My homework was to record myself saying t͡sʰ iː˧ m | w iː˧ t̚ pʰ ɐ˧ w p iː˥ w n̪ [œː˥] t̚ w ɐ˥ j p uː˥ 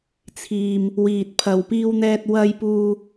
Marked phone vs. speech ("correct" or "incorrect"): incorrect